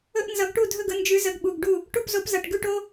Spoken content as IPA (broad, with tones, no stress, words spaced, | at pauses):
ɵ˦ʔnzʌ˨˥ɡʈu˥˩dʱɵ˥˩ɡ ə˨˥nd͡ʒʉ˨˥ zə˨˥ɡɓu˩˧˩ɡɖu˥˩ | ʈu˥˩pzo˨˥p zʌ˩˧˩ʈɡʉ˥˩ʈo˦